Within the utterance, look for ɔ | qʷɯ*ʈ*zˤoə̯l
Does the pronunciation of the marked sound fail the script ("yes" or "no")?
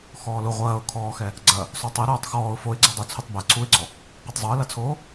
yes